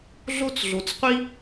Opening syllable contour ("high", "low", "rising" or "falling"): high